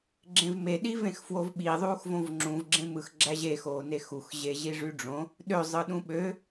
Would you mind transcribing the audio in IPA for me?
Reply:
ɡ͡ǁ ẽ v m e ɗ i v ẽ x f w o v ɓ i ðˤ uː x v õ v ŋ͡ǁ ũ v ɡ͡ǁ ẽ m ɯ x ɡ͡ǁ æ ʑ e x oː n e x u x ʑ e ʑ i ʐ y ɖ͡ʐ õ | ɗ ø zˤ ɯ ɗ ũ ɓ ø

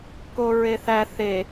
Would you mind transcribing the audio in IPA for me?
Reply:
k o ɹ e θ æ θ e

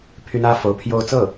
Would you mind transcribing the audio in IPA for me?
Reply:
pʰ y˥ n ä˥ f o˧˥ ʊ̯ pʰ j o˥˧ ʊ̯ t͡s ɤ˥˩

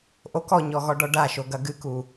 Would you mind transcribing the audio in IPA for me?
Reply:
ʔ o k ɔ ɲ ɔ ɣ ɔ ɖ ɔ ɖ a ʃ o ɡ ɐ ɡ ɨ k u

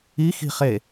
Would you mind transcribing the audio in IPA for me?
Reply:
i x i̤ χ e

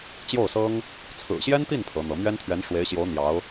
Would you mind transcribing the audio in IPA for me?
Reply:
t͡ɕ j o˥˩ ʊ̯ s ɤ˥ ŋ | t͡sʰ ɹ̩˨˩ ɕ j ɛ˥ n t̪ i˥˩ n pʰ ɤ˧˥ n̪ ɤ˧˥ m ɥ ɛ˥ n t̪ʰ ɥ ɛ˧˥ n ʂ w e˧˥ ɪ̯ ɕ j o˧˥ ʊ̯ n̪ j ɑ˧˥ ʊ̯

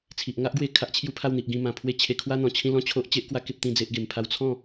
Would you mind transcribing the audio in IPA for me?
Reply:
t͡sʰ i˨ ʔ ŋ a˦ ʔ ɡ w e˧ kʰ a˦ ʔ t͡ɕʰ j u˦ pʰ a˥˧ w n̪ i˨ ʔ ɡ ĩ˧ m ã˨˩ pʰ w e˥˧ t͡ɕʰ e˧ kʰ w a˦ n̪ ɔ̃˨˩ t͡ɕʰ ĩ˥˧ l ɔ̃˥˧ t͡ɕʰ o˦ ʔ t͡ɕ e˦ ʔ k w a˦ k e˦ p̚ t̪ ĩ˥˧ d͡z e˦ ʔ ɡ e˧ m pʰ a˦ w t͡sʰ ɔ̃˥˧

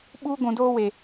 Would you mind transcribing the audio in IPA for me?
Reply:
ɓ uː˦ ɡʷ ũ˨ d oː˦ w e˨

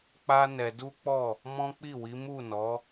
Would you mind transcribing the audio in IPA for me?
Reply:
k͡p a˦ n ɛ˧ d u˦ k͡p ɔ˦˨ | m ɔ̃˦ k͡p i˦˨ w i˨˦ m u˦˨ n ɔ˨˦

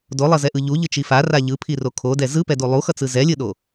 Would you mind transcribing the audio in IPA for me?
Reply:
d o lˠ ʌ z ɛ ʔ ɯ ʎ u ʎ ɯ t͡ʃ i f a r a ʎ ɯ pʰ i r o kʰ o d ɛ z ɯ p ɛ d u lˠ u x ʌ t͡s ɯ z ɛ lʲ ɯ ɗ o

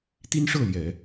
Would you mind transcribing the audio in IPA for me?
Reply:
t̪ i˥ n ʂ ɤ˥˩ l j ɛ˨˩˦

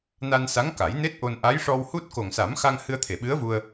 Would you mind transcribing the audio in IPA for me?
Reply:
n a˧ n s a˧˥ ŋ k a˨˩˦ j n e˦˥ t̚ ʔ o˧ n ʔ a˧˥ j ʂ ɔ˧ w h u˦˥ t̚ k o˨˩ ŋ s a˨˩˦ m x a˧ ŋ h ɨ˧ ə̯ t̪ʰ e˨˩˨ ɓ ɨ˧˥ ə̯ v u˧ ə̯

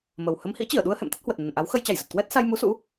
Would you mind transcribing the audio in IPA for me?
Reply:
m ə˨˩ w h ə˨˦ m h ḭ˧˥ t͡ɕ i˧˩ ə̯ ɗ u˧ ə̯ h ɛ̰˧˨ m t̪ ə˦˥ t̚ h w ə˨˩ t̚ n ə˨˩ n ʔ a˨˦ w x ə˧ j t͡ɕ a˧˩ j z ə˨˩ t̚ k w ɛ˦˥ t̚ s a˧ j m u˨˦ s ṵ˧˥

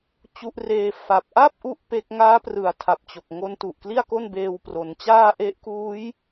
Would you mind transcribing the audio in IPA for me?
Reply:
t͡ɕ u˦˥ ʔ r eː˦˥ f a˨˩ p̚ ʔ a˥˩ p̚ ʔ u˥˩ ʔ p e˦˥ k̚ ŋ aː˦˥ p r ɯ˩˦ a̯ tʰ a˨˩ p̚ t͡ɕ o˨˩ k̚ ŋ o˦˥ n t u˨˩ ʔ k l i˥˩ a̯ k o˥˩ n b eː˧ w p r o˩˦ n t͡ɕ aː˥˩ ʔ e˦˥ ʔ k uː˦˥ j

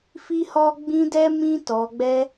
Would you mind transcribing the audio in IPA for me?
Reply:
f i˦ h ɔ˦ ɡ͡b ĩ˦ d ɛ˦ m ĩ˦ t ɔ˧ ɡ͡b ɛ˦

